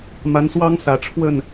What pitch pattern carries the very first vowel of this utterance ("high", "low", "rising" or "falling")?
rising